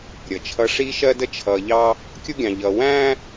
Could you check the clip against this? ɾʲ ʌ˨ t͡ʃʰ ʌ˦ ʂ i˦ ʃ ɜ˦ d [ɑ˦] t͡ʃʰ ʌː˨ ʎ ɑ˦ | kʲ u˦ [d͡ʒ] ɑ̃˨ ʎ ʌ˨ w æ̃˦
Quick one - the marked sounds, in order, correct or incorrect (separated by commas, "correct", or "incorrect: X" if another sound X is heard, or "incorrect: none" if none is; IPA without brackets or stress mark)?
incorrect: ə˦, incorrect: ɡʲ